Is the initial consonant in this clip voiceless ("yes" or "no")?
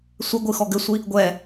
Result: yes